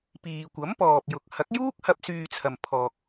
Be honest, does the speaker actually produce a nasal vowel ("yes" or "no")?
no